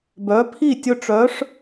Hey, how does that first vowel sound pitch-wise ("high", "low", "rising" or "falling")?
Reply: rising